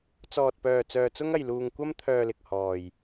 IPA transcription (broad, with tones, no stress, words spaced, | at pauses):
t͡sɔː˨t̚pœː˨ t͡sœː˧t͡sʊ˥ŋɐ˧jluː˧ŋ kʷɐ˥mt̪ʰœː˧lɪ˨k̚ hɔː˨j